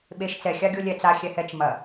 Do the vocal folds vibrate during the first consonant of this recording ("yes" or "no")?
yes